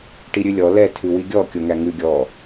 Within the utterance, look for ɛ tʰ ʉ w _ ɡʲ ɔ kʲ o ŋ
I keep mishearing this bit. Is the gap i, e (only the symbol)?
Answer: i